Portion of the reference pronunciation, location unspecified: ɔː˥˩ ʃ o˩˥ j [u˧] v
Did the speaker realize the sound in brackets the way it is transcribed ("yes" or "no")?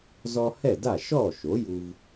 yes